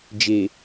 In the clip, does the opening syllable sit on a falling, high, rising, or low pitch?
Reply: low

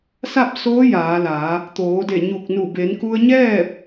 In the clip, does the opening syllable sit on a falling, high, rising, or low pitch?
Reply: falling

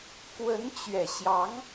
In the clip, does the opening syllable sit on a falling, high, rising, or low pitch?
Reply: rising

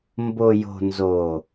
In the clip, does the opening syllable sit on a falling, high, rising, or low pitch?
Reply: low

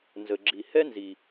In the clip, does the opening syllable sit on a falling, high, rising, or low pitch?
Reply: low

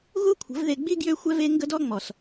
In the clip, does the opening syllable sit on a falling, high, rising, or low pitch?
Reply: high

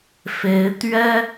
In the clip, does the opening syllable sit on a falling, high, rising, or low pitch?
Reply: rising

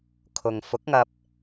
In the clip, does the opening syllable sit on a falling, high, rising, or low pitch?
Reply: low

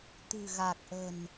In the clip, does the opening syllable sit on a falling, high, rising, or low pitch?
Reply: low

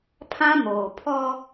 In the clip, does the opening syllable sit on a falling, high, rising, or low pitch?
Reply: high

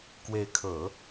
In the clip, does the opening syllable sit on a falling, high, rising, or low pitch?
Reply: rising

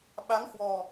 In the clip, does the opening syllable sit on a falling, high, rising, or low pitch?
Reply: rising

